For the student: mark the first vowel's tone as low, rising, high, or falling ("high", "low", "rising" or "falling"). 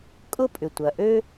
high